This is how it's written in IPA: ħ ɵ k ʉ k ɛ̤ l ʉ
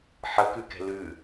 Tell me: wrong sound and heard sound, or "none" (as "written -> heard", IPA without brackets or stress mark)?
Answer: ɵ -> ə